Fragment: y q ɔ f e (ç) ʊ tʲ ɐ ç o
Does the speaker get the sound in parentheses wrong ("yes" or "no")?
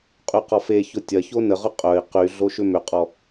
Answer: no